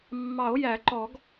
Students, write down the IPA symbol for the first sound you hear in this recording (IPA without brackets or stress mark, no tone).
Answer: mː